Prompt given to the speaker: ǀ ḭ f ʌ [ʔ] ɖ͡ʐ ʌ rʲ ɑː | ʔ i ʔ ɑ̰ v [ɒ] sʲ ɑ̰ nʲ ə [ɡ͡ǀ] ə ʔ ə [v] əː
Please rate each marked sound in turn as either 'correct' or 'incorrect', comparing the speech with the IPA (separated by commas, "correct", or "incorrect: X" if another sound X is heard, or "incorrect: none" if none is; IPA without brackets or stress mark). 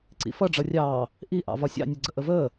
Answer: incorrect: none, correct, correct, correct